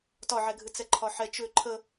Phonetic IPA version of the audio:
t ɒ ʕ ɛ ɡʱ ɨ t͡s ɛ ǃʰ ɒ ħ ɛ t͡ʃ ʏ ǃʰ ə

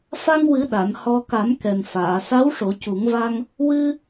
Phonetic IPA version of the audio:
f a˧ ŋ w ɨ˨˩˦ ɗ a˨˩˨ n h ɔ˧ k a˨˩˦ m k ɛ˨˩ n f aː˨˩˨ s a˧˥ w ʂ o˨˩˦ c u˨˩˦ ŋ v a˧ ŋ | w ɨ˧

